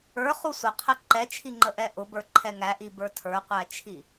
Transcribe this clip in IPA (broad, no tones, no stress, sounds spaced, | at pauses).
ə˞ χ u sʷ ə qʰ ɛ ǃ ɛ t͡ʃʰ i ŋ͡ǃ ə ʔ ɛ ʔ ʊ b ə˞ ǃʰ ɛ ŋ æ ʔ i b ə˞ tʰ ə˞ qʷ æ t͡ʃʰ i